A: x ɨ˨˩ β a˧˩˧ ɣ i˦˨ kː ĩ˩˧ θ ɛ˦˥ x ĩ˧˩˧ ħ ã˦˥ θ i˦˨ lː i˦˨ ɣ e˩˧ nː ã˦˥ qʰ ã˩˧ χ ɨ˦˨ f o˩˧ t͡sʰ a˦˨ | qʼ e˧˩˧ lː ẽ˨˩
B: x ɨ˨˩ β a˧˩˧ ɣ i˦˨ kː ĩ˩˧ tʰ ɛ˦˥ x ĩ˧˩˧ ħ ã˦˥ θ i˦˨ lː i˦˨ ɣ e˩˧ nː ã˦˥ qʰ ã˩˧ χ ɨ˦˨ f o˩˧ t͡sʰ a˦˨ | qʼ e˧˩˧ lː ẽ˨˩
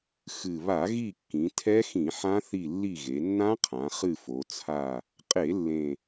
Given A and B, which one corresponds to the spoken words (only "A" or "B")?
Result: B